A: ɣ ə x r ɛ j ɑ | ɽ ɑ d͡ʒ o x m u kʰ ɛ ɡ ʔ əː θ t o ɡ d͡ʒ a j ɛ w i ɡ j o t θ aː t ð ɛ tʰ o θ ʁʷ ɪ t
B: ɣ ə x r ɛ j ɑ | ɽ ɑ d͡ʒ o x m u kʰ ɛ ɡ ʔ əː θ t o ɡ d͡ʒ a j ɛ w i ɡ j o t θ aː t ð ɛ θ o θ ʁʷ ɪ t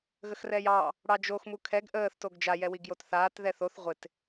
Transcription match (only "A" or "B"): B